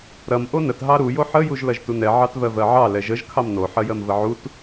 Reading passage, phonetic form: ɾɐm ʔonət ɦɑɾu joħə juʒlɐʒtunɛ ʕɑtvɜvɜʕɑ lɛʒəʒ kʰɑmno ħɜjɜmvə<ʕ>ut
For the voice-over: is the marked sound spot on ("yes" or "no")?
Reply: yes